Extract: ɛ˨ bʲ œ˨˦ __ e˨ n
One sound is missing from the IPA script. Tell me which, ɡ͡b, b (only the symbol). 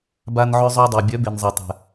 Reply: b